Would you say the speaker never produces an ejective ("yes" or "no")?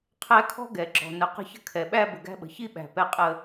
no